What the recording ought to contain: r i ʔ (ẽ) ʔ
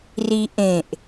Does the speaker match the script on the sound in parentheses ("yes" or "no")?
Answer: yes